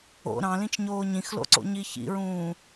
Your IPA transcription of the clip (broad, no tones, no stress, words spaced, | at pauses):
o̰ ɾɑ̃lĩt͡ʃɲoː ɲĩxlo̰ǀo̰ɲi çḭɹũː